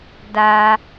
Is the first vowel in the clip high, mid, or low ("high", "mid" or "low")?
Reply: low